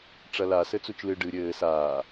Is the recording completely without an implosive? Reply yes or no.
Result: yes